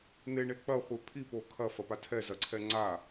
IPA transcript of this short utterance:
n̪eɳe k͡pɐχʷe pʰipo kʰɐfɐpa tʰɛzɐǀʰɛ ŋ͡ǀa

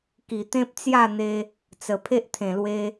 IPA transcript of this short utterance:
ki˨˩t̪ẽ˦p̚t͡sja˥˧n̪e˧ | t͡sə˨˩pʰe˦ʔt̪ʰẽ˨˩lwe˧

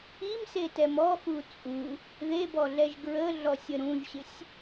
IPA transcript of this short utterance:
imsetɛm ɔxu t͡sʼu | ðebɔɮɛʒ ɡɹəɮɔsʲə ɾũʒɕɪsʲ

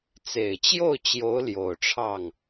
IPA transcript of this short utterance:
t͡se˨˩ɪ̯t͡ɕjo˥˩ʊ̯t͡ɕjo˧˥ʊ̯ ljo˨˩ʊ̯ʈ͡ʂʰɑ˥˩ŋ

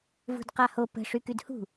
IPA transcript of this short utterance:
vṳdqaho pə̤ ʂykydhṳ

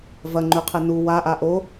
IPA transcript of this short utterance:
vɐŋ͡ǃʉqʰe nu waʔa ʔo

